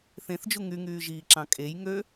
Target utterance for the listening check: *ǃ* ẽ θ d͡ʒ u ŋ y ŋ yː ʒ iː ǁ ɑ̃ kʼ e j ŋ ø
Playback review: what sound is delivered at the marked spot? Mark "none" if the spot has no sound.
θ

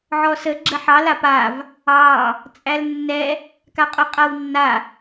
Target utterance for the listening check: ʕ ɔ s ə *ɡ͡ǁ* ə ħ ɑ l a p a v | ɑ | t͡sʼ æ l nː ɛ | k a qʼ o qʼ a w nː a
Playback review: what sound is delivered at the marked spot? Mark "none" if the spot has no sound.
ɡ͡ǁ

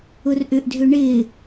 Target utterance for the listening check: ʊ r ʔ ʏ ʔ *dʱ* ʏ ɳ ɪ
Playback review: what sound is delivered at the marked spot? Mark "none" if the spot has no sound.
dʱ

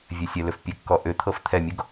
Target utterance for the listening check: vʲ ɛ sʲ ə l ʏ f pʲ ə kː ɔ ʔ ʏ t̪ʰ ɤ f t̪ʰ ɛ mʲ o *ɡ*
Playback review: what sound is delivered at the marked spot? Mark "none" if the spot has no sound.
ɡ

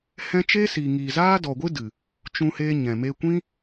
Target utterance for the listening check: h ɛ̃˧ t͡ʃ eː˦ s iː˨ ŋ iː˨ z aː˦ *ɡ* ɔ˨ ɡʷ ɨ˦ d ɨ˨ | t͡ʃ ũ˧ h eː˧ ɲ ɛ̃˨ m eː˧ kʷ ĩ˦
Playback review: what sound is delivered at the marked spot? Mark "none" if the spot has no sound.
d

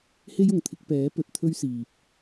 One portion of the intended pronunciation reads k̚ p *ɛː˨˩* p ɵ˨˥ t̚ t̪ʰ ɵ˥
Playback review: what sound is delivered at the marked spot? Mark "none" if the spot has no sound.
ɛː˨˥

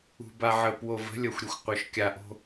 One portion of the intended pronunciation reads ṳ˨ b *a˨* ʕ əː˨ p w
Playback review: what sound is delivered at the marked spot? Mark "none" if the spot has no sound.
a˨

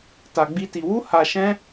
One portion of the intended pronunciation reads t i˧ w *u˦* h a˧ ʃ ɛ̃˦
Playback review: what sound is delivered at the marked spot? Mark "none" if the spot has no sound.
u˦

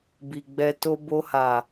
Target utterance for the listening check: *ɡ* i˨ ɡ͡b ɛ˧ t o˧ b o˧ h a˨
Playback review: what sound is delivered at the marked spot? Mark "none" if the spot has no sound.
b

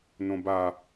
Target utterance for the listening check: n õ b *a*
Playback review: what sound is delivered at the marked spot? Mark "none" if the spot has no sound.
a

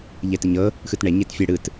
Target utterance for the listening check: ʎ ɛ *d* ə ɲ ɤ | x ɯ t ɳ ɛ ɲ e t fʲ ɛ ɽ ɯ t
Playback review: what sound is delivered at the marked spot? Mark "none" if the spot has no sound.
t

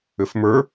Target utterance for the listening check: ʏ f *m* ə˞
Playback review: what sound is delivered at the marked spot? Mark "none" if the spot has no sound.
m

